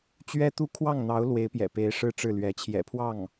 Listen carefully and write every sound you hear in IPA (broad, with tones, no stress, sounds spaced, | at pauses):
t͡ɕ ɥ ɛ˥ t̪ u˥ kʰ w ɑ˥˩ ŋ n̪ ɑ˧˥ ʊ̯ l w e˧˥ ɪ̯ p j ɛ̰˨˩ p e˧˥ ɪ̯ ʂ ɻ̩˥˧ ʈ͡ʂ ɻ̩˥˩ l ɥ ɛ˧˥ t͡ɕʰ j ɛ̰˨˩ pʰ w ɑ˥˩ ŋ